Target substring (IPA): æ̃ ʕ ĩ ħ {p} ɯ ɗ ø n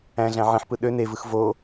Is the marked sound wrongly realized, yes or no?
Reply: no